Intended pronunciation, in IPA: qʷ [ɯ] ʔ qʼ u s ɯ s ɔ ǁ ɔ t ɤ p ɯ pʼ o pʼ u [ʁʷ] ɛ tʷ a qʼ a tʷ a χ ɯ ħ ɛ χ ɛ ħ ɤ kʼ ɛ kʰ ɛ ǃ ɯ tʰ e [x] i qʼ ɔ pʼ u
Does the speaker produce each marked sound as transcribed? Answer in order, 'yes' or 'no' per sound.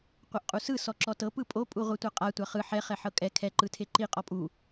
no, yes, no

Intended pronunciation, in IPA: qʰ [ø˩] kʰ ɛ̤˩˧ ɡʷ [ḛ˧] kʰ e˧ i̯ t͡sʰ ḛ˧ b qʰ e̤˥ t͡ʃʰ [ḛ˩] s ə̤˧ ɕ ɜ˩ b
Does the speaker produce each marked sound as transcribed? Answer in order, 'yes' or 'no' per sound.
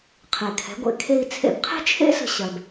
no, yes, no

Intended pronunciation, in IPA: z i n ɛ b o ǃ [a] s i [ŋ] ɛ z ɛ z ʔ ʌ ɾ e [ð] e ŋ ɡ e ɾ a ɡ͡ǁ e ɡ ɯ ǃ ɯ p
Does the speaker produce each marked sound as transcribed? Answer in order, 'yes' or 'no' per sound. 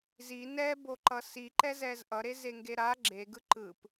no, no, no

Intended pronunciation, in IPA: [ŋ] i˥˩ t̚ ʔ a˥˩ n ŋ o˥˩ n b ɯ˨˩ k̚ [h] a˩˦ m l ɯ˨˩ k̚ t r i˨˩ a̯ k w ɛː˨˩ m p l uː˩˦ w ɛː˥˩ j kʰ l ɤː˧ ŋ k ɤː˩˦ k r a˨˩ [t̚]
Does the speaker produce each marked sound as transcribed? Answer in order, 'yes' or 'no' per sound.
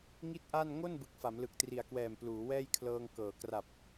yes, no, no

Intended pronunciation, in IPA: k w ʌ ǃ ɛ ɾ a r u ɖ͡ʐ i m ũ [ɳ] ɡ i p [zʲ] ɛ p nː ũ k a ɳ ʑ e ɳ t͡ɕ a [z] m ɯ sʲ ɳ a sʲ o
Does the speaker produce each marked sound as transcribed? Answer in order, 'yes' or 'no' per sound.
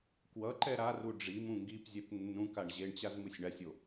no, yes, yes

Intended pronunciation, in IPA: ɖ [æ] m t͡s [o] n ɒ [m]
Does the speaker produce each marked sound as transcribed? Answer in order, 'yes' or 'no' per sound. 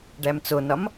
yes, yes, yes

